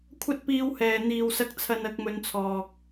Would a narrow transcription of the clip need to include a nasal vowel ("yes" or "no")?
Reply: no